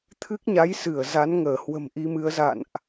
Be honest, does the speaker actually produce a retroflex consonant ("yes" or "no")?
no